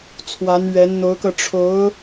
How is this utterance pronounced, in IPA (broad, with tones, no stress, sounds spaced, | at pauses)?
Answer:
t͡sʰ w a˧˥ n ɥ ɛ˧˥ n n̪ o˧˥ ʊ̯ k ɤ˧ ʈ͡ʂʰ o˧˥ ʊ̯